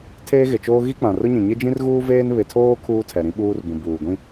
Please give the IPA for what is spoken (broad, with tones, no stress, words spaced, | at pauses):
tʰeː˦ɣɪ˨t͡ʃoː˦ ɣi˦k͡pã˨rʊ˦ɲĩ˨ ɲɪ˦d͡ʒĩ˦rɣuː˦veː˦n βɪ˨tʰoː˦ kʰuː˦tʰɛ˨ ɾĩ˦ɓuː˦rbũ˨ buː˨ɡʷĩ˦